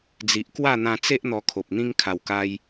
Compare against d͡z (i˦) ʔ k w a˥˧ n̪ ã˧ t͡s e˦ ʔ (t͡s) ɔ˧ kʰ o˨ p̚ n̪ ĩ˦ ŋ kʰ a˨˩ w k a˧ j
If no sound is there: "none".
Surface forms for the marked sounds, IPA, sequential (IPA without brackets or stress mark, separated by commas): i˨, n̪